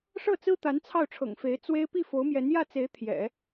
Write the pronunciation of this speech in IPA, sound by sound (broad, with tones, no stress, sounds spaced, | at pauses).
ʂ ɤ˥˩ t͡s ɹ̩˥ t̪ a˧˥ n t͡sʰ ɑ˥˩ ʊ̯ ʈ͡ʂʰ ɤ̰˨˩ ŋ f e˧˥ ɪ̯ t͡s w e˥ ɪ̯ p i˥˩ f o˧˥ ʊ̯ m j ɛ˧˥ n j ä˥˩ t͡s e˧˥ ɪ̯ t̪ʰ j ɛ̰˨˩˦